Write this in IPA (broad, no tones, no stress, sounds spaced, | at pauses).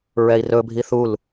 ɹ ɛ i̯ r ɵ bʱ i θ u l